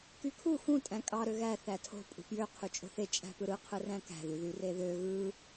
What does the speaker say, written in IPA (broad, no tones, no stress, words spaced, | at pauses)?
kykʰu xũ tʼæ̃kʼɑ ɾøɣæ θætʰo̤ pʼṳpjø qʰyt͡ʃʼo̤θe t͡ʃʼæ̤pɯɾɯ qʰɯræ̃kæ̤ ðyðyreðø ɣɯ